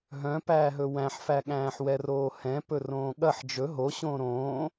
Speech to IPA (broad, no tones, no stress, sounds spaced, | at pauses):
ɦ œ̃ p æː ɦ ɵ w æ̃ ħ f æ ɠ æ̃ː ħ w ɛ r oː h ɛ̃ p ɵ r õː ɠ ɐ ħ d͡ʒ ɵ ɦ o ɕ õː ɾ õː